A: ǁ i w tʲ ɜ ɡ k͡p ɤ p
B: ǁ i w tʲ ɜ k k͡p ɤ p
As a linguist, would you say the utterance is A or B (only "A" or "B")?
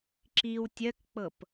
B